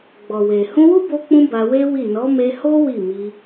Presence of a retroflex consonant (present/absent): absent